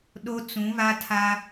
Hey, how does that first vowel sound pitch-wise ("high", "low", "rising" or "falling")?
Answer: high